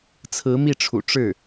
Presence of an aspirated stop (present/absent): present